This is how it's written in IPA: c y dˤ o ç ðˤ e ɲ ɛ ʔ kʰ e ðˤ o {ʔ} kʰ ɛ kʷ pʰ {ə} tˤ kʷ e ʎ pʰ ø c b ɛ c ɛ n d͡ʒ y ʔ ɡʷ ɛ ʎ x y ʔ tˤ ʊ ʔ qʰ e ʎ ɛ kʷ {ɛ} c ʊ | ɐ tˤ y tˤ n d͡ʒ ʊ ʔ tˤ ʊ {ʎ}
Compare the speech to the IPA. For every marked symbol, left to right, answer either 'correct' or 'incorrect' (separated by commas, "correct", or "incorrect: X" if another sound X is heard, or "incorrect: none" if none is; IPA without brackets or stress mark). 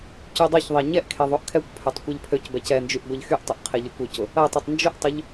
correct, incorrect: ø, incorrect: ø, correct